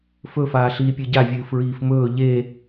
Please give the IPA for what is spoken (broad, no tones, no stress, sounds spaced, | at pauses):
f ɵ f aː ɬ iː pʲ ɨ ɟ a vʲ ɨː f ɹ iː f m ɵː ʎ e